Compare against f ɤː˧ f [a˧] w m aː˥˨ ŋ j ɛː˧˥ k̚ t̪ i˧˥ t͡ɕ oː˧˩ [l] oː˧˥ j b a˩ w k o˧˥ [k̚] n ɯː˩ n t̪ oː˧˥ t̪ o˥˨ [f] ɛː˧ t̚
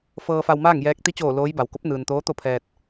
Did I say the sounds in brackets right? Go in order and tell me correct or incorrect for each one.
correct, correct, incorrect, incorrect

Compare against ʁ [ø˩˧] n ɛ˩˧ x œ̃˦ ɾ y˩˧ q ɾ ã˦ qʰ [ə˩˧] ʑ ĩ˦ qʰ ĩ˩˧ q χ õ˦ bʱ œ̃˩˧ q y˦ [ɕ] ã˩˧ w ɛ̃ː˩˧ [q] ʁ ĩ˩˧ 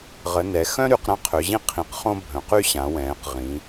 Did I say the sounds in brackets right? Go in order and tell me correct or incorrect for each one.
incorrect, incorrect, correct, correct

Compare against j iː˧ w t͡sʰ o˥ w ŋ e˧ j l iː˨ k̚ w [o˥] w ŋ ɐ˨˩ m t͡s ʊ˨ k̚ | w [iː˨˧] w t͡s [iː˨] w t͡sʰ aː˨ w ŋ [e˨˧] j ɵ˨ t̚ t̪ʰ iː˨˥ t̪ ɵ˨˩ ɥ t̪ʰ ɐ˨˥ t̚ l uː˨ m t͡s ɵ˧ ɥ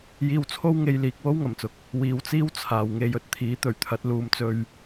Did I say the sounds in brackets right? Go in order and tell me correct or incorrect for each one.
correct, correct, incorrect, correct

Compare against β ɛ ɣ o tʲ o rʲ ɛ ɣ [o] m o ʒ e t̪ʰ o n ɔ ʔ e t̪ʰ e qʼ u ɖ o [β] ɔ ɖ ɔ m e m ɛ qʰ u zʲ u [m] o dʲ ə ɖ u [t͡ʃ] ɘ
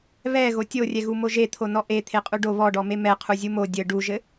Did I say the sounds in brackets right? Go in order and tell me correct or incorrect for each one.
incorrect, correct, correct, incorrect

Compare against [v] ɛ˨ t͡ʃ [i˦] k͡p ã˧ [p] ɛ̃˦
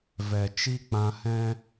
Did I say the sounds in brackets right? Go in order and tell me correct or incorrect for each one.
correct, correct, incorrect

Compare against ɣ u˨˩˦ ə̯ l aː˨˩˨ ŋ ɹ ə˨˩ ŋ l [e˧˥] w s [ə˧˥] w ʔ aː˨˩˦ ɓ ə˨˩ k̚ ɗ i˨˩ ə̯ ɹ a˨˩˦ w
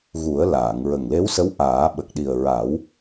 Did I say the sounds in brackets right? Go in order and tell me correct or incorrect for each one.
correct, correct

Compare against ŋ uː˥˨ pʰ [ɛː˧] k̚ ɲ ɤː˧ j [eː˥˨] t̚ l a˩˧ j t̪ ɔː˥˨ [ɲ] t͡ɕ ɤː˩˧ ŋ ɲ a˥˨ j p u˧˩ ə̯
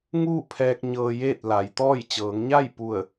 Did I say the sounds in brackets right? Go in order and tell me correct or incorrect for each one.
correct, correct, incorrect

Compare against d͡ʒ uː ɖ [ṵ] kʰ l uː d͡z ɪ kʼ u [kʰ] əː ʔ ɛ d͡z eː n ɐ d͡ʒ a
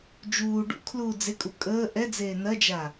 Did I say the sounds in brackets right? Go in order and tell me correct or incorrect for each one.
correct, incorrect

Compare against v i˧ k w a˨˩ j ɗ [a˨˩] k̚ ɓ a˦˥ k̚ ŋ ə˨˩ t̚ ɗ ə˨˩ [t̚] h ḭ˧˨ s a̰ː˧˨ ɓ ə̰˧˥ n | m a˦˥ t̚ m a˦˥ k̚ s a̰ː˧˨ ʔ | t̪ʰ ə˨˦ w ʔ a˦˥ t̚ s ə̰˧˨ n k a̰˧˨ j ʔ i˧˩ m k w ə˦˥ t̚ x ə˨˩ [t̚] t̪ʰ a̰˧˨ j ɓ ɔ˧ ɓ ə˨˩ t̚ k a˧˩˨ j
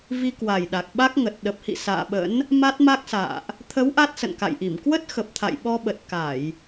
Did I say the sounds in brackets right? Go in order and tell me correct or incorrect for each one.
correct, incorrect, incorrect

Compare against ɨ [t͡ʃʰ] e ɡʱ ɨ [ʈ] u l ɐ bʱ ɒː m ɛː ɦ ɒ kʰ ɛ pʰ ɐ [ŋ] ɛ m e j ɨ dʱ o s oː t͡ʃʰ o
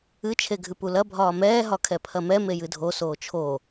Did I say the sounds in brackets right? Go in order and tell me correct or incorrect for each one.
correct, incorrect, incorrect

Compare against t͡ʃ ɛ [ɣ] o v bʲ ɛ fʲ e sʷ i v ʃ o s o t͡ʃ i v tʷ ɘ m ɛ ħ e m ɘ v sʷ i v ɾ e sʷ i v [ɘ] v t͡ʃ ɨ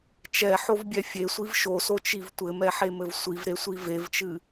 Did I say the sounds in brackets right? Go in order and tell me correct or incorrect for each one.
incorrect, incorrect

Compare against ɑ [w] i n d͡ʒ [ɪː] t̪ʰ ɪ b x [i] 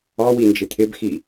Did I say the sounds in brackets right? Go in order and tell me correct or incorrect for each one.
correct, incorrect, correct

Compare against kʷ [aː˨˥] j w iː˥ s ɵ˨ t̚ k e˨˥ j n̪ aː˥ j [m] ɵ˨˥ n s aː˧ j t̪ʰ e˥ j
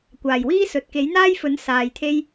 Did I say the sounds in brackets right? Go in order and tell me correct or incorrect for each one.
incorrect, incorrect

